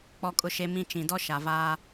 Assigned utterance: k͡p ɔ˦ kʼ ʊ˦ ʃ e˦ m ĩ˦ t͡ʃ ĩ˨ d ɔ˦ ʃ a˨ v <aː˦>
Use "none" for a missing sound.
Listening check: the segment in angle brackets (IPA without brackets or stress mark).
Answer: aː˦